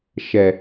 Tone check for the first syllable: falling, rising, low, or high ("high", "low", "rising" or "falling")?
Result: low